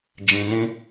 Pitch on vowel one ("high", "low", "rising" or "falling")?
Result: low